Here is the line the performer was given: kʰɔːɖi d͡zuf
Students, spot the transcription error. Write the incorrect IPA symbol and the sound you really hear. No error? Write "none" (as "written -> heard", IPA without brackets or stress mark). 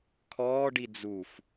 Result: none